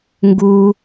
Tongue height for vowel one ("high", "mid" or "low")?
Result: high